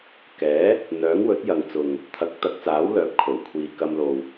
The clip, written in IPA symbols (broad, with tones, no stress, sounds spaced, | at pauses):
k ɛː˨˥ | n̪ œː˨˥ ŋ w ɵ˨˥ t̚ j ɐ˨ ŋ t͡s ʊ˨ ŋ | t̪ʰ ɐ˨˥ k̚ t̪ ɐ˨˥ k̚ t͡s aː˨˥ w l œː˨˥ p̚ kʰ o˨˩ w kʷʰ iː˨ k ɐ˧ m l o˨ w